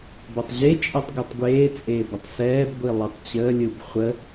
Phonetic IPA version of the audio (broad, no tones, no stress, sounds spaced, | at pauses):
b ɐ tˤ ʑ e t͡ʃʼ ɛ tˤ ɡʷ ɯ tˤ ɡʷ eː t͡sʼ eː b ə tˤ s ɛː b ɡʷ i lˠ i tˤ t͡ɕ əː lʲ ɯ b χʷ ə